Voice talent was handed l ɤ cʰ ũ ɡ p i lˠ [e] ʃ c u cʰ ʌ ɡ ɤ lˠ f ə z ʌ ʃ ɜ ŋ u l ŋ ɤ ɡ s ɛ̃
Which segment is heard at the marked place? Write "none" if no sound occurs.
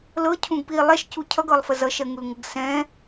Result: ɛ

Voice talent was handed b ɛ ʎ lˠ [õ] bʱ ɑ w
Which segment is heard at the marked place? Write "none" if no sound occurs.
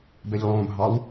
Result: õ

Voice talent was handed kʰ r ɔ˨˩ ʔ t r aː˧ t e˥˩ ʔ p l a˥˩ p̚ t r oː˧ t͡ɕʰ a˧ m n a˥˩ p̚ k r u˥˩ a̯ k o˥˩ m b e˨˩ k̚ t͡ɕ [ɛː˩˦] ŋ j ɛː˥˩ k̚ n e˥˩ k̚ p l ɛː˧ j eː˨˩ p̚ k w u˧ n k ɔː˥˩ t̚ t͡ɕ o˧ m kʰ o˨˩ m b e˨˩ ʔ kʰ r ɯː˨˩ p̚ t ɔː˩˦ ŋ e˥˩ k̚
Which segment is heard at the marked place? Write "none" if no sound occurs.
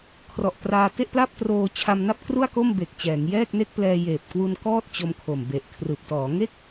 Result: ɛː˩˦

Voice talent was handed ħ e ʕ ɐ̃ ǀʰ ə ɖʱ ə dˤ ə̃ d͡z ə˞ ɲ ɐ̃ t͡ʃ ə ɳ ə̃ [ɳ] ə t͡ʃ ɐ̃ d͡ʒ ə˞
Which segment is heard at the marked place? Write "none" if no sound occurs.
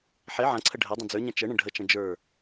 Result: ɖʱ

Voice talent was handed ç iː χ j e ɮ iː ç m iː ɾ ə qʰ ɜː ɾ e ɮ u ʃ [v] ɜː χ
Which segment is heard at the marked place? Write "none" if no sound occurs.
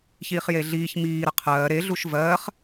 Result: v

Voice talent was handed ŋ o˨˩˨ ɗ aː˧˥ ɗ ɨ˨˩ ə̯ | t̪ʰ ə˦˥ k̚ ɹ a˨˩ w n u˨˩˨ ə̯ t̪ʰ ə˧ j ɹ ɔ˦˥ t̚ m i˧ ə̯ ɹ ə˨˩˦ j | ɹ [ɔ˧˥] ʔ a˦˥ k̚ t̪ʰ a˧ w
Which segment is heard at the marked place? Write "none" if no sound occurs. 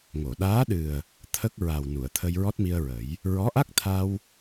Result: ɔ˧˥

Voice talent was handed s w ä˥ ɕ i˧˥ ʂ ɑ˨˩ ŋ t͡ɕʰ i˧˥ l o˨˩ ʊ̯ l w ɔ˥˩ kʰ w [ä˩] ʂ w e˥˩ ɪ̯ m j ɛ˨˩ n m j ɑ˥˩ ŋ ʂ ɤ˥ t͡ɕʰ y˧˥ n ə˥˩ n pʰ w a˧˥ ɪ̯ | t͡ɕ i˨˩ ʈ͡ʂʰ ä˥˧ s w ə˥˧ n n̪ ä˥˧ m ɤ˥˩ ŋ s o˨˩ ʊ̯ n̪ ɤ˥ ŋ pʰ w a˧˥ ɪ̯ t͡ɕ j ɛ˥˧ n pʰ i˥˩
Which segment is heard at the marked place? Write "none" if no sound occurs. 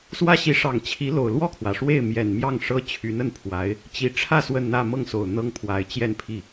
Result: ä˩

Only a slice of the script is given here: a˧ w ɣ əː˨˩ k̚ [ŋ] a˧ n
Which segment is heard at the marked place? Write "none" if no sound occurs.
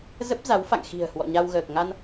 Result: ŋ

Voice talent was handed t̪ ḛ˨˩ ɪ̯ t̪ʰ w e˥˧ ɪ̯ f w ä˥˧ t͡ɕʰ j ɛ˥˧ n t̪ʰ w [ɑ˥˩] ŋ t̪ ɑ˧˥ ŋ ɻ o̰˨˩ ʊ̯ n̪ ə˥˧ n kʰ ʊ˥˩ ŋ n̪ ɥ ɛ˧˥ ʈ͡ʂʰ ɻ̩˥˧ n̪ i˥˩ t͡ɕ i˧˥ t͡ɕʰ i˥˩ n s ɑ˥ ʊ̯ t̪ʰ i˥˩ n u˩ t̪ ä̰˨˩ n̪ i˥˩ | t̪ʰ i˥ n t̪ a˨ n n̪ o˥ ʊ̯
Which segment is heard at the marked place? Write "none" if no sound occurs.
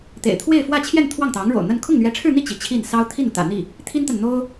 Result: ɑ˥˩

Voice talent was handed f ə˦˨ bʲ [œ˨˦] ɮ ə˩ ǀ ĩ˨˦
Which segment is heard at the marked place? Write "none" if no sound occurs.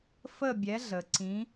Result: ɛ˨˦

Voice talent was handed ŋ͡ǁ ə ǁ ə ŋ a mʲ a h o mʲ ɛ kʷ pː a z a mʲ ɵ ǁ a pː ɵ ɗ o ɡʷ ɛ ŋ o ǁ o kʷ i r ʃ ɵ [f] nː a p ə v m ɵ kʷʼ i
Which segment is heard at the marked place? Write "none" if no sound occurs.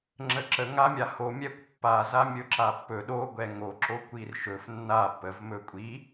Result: f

